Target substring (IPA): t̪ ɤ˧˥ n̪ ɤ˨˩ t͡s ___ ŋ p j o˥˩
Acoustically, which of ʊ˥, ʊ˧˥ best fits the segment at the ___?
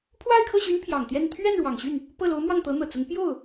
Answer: ʊ˧˥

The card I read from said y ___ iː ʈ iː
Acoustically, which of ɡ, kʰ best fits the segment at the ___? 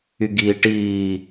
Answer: ɡ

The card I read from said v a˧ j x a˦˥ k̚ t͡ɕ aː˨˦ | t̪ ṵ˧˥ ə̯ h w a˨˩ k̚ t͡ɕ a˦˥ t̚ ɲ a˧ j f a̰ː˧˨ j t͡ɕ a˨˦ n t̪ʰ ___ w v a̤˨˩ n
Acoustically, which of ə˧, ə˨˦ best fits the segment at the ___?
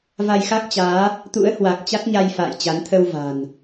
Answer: ə˧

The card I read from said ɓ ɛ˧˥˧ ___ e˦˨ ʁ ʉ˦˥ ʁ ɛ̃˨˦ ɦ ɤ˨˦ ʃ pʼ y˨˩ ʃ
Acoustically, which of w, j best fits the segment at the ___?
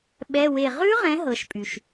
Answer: w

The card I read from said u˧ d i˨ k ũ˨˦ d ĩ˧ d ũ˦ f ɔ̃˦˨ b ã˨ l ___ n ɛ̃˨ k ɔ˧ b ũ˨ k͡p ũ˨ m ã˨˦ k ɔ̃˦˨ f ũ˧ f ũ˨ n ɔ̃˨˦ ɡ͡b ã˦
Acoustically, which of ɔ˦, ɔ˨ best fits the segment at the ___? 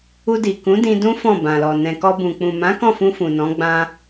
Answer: ɔ˨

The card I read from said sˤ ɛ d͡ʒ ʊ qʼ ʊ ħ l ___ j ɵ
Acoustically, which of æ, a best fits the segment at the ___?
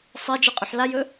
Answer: a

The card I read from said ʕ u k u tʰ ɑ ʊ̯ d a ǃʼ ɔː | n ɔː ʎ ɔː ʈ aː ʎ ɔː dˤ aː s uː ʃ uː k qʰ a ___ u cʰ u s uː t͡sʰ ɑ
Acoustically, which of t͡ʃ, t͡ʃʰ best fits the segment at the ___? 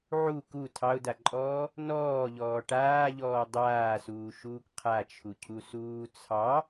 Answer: t͡ʃʰ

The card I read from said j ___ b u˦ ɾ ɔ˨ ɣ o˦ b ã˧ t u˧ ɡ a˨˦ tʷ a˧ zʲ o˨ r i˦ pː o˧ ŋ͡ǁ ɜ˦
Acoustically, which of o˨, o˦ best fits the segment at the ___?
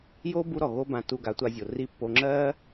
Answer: o˦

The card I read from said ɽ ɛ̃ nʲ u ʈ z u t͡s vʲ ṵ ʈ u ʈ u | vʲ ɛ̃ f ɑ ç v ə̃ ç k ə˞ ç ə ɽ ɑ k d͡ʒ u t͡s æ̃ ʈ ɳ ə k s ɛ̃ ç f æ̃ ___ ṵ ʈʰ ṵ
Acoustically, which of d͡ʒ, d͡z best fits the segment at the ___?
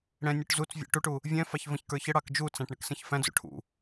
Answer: d͡z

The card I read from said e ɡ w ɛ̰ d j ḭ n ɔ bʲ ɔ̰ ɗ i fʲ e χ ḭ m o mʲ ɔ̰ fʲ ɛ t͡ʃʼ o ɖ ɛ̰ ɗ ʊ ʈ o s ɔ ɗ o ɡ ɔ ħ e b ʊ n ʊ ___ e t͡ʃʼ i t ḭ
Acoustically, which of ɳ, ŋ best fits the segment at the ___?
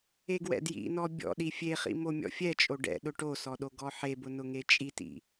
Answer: ŋ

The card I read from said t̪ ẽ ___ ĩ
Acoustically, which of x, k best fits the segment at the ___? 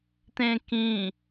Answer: k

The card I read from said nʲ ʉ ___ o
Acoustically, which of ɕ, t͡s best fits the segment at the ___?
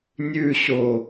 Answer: ɕ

